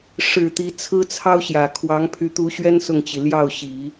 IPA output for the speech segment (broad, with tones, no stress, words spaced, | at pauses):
ʂɻ̩˨˩ t̪i˧˥t͡sʰɹ̩˥t͡sʰɑ˥ʊ̯ɕjä˨˩ kʰwɑ˧˥ŋpʰy˧˥ t̪u˧˥ɕɥɛ˥n sʊ˥˩ŋt͡ɕi˩ ljɑ˥˩ʊ̯ɕi˨˩˦